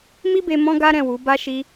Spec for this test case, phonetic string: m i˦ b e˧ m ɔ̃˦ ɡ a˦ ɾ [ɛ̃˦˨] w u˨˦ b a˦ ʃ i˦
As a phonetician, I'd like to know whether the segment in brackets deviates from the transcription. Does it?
no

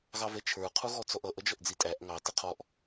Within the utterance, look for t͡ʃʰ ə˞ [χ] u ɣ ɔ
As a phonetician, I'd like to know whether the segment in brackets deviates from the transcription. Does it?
yes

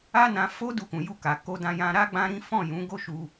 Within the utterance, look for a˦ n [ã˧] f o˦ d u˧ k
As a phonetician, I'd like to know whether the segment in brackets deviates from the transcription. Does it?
no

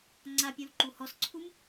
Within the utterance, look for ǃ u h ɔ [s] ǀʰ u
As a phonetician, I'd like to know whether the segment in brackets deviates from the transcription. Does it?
no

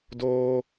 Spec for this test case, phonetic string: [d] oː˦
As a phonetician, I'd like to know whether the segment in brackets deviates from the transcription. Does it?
no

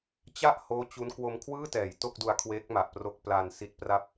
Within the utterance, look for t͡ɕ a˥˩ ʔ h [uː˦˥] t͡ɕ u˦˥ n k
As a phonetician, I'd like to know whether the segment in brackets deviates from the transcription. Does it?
yes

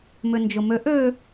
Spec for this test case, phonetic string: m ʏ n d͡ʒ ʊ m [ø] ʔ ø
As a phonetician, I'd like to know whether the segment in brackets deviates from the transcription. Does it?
no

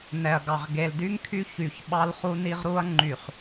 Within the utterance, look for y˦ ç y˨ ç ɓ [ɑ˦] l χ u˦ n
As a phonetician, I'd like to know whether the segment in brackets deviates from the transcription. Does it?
no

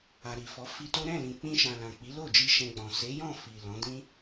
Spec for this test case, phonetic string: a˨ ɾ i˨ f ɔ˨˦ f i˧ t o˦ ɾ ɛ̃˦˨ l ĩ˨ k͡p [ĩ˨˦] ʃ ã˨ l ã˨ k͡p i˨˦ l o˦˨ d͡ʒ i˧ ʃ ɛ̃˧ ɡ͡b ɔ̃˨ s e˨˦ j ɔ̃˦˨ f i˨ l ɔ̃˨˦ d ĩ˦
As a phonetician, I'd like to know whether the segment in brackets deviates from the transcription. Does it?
yes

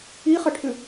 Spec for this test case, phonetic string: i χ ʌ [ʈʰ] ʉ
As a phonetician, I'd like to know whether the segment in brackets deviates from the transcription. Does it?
no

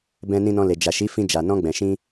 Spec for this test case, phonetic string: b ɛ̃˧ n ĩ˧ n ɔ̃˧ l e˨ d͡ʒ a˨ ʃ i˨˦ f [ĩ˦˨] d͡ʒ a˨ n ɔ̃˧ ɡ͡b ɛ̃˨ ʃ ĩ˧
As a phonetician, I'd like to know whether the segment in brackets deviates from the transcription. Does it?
yes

